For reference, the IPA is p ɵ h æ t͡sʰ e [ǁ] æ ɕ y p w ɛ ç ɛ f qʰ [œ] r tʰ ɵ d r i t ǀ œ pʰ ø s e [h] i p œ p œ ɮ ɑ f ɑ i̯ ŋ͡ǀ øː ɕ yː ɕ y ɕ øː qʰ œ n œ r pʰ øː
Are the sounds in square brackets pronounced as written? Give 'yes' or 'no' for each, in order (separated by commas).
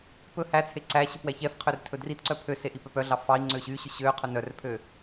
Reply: no, no, no